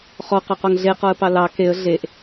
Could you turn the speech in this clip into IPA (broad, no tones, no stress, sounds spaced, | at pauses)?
χ ɔ q ɑ q ɔ ŋ ɮ e q ɔ ə̯ p ɑ l ɑ k e ə̯ ɮ e ʔ